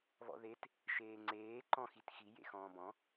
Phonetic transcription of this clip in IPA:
β ɔ̰ ð e t | ʃ eː ŋ͡ǀ eː ǃ ɔ̃ x i t x i j ḛ x ɔ̃ː b ɔ̃

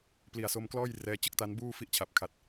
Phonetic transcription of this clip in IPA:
p l i˨˩ a̯ s o˧ m k l ɔː˥˩ j r ɛː˧ t͡ɕ ɯ˥˩ k̚ t a˦˥ n b uː˥˩ f i˦˥ ʔ t͡ɕʰ a˨˩ p̚ kʰ a˨˩ t̚

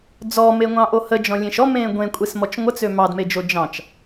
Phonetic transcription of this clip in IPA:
d͡z ɔ m e ŋʷ ɑ̃ ʔ o h ə d͡ʒ ɔ̃ lʲ ẽ ʃ ɔ m ẽː ɡʷ ẽ kʷʼ e s m ɔ t͡ʃ ŋʷ ə t͡s ø m ɑ d m e d͡ʒ o d͡ʒ ɑ̃ t͡ʃ

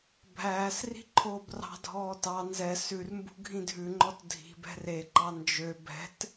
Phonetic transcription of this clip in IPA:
bʱ æː s r i̤ ǃʰ oː b r ɑ̤ dʱ ɔː t ɑ n z ɛ s ʉ r m b ṳ ɡʱ ĩ dʱ ʉ ŋ͡ǃ ɔ t dʱ i̤ b ɛ̤ r e ǃ ɑ n d͡ʒ ø b ɛ̤ t

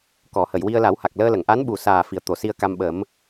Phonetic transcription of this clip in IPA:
k ɔ˨˩˨ h ə˨˩˨ j w i˧ ə̯ l a˨˩˦ w h a˨˩ k̚ l əː˧ l ə˨˩˨ ŋ ʔ a˧˥ n ɓ u˨˩ s aː˨˩ f i˨˩ ə̯ t̪ o˨˩˨ s i˧ ə̯ k a˧ m ɓ ə˨˩˦ m

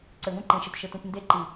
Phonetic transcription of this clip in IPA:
ǀ ɘ˨ v ũ˦ ǃ ẽ˨ ʃ ɘ˨ t ʃ ɘ˨ t ũ˨ t n d e˦ ǃ i˨

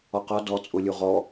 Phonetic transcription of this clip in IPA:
ɔ q ɒ d ɔ t͡sʼ ʊ lʲ u ʁ ɔ

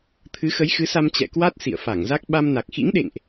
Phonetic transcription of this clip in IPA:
t̪ʰ ɨ˨˦ x ə˨˦ j x ɨ˨˦ s a˧ m t͡ɕ ɛ̰˧˨ k w a˦˥ t̚ s ḭ˧˨ ə̯ f a˧˩ ŋ z a˦˥ k̚ ɓ a˧ m n a˨˩ k̚ x ḭ˧˥ ŋ ɗ ḛ˧˨ ŋ ʔ

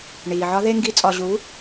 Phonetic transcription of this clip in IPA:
ɳ iː˨ ʕ ɒ˦ ð e˧ ŋ ɡ i˨˦ t͡sʼ ɒ˨ ʑ u˨˦

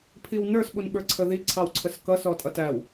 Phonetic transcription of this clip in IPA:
pʰ i w n ə˞ s ɓ u n ɓ ə˞ ǀʰ ə ð i ǀʰ ɑ w ǀʰ ə s k ʌ s ɔ tʼ ʌ t æ w

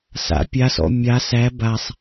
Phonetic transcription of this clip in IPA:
s a̰ pʲ a s ɔ̰ mʲ a s æ b a sˤ

